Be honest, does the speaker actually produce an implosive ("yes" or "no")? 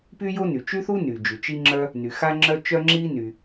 no